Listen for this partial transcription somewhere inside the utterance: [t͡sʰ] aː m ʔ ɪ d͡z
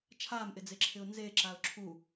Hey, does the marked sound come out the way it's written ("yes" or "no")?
no